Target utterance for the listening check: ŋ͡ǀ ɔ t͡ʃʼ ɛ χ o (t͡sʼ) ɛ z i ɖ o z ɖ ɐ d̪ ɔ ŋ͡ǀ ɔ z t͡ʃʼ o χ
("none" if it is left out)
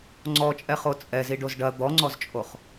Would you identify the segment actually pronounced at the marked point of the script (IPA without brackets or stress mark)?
t͡sʼ